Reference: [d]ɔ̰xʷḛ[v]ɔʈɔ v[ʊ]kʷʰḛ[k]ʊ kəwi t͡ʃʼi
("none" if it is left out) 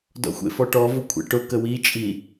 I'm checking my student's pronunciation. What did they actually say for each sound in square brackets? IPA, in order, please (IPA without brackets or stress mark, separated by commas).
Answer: d, f, ʊ, ʈ